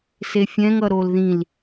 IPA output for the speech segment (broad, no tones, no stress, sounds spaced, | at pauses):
s e fʲ ɛ̃ ŋ ʌ ɾ o l ð ĩ l